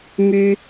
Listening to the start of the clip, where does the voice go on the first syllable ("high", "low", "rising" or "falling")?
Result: high